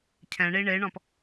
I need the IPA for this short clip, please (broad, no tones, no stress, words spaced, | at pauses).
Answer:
cʰɛ̃ɳi ɳeɳɔ̃p